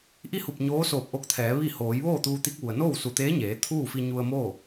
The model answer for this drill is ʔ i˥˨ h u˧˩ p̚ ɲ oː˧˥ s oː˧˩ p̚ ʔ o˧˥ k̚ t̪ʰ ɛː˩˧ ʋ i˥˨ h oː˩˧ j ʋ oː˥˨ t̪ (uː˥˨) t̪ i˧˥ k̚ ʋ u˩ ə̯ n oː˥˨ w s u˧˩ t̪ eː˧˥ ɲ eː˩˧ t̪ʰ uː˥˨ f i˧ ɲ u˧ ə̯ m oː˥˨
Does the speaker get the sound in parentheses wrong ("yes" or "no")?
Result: yes